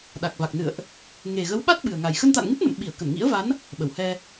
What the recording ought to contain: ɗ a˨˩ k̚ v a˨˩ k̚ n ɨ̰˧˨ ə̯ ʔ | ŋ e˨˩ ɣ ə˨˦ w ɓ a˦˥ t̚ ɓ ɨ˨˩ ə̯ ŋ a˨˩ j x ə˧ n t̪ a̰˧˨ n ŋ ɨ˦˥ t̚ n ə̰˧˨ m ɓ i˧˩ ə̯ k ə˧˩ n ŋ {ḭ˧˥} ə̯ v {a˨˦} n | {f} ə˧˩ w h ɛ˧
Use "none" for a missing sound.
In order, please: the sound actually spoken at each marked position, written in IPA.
ḭ˧˥, a˨˦, ɓ

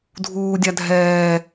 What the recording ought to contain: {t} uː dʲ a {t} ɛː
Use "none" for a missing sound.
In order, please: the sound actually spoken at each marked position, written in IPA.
dʱ, dʱ

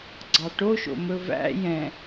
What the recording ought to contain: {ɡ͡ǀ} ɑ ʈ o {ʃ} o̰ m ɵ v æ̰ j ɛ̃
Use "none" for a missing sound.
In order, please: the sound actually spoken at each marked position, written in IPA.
ɡ͡ǀ, ʃ

